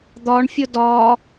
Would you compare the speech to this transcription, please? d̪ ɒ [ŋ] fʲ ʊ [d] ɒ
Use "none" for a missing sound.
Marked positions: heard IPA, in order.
ɳ, d

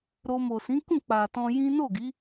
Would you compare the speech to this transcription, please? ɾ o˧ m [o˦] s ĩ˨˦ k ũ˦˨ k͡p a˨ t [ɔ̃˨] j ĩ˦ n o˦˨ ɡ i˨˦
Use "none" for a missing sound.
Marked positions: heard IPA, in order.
o˨, ɔ̃˧

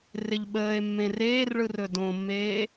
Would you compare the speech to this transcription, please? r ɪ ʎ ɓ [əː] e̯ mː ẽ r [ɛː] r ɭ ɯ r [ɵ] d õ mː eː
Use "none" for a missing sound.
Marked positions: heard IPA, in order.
əː, eː, ɵ

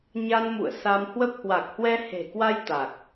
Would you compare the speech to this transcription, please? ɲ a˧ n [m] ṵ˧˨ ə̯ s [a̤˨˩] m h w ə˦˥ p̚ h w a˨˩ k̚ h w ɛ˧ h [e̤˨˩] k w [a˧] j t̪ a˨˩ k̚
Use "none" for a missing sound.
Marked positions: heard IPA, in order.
m, a˧, e̤˨˩, a˧

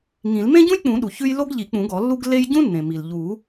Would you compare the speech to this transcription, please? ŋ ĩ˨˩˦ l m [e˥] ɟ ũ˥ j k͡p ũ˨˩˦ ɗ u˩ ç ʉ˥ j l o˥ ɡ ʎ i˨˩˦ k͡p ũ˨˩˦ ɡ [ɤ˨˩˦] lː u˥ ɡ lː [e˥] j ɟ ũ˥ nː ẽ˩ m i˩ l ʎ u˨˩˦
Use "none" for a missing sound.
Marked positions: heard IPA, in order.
ẽ˥, ɔ˨˩˦, e˥

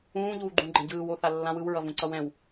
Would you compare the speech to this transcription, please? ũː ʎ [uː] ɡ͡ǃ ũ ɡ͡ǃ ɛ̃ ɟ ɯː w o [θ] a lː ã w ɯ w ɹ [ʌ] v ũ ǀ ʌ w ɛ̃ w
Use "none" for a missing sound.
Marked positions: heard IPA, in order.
uː, θ, ʌ

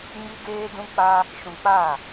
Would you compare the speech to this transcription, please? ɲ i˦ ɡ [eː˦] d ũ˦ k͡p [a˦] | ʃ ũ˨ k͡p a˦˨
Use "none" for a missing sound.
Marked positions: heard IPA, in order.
eː˦, a˦

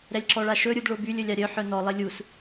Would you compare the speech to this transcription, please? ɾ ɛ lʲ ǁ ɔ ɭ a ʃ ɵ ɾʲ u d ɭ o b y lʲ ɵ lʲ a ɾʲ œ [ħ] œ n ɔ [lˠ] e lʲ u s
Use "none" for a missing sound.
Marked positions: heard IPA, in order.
ħ, lˠ

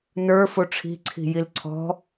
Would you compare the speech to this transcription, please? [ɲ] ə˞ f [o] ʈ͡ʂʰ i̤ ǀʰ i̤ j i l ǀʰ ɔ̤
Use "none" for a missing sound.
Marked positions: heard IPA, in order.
n, o

